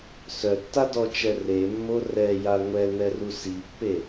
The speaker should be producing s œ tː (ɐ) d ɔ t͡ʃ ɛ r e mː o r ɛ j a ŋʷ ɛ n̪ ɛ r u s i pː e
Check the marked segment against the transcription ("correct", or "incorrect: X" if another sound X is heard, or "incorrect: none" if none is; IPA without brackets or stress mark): incorrect: a